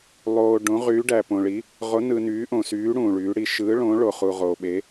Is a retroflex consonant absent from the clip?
no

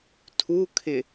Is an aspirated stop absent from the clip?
no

